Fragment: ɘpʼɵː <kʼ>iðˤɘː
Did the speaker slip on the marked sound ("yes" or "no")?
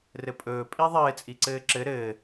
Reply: yes